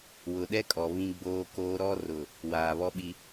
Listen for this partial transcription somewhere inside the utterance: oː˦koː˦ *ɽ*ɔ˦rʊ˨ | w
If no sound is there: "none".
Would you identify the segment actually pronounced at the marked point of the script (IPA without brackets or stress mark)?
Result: ɾ